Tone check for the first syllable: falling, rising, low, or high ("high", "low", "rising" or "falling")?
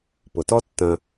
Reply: low